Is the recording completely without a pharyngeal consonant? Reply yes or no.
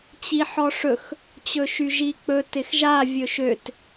no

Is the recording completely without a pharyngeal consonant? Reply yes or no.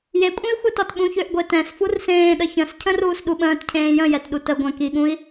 yes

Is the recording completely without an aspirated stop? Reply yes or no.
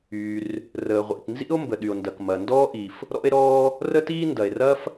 yes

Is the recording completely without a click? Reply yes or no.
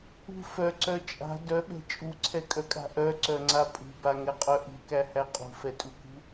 no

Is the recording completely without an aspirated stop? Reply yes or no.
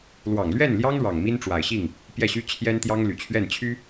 no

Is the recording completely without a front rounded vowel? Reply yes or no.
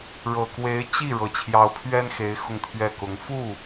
yes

